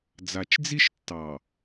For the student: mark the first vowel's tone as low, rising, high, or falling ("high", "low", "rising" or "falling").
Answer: low